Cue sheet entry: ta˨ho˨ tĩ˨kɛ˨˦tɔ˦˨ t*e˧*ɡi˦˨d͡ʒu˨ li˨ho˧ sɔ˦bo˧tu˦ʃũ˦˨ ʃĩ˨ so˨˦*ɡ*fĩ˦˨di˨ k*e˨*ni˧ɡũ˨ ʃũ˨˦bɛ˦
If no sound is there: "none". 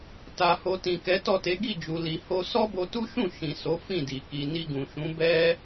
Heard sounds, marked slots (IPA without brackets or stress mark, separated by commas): e˨˦, none, i˨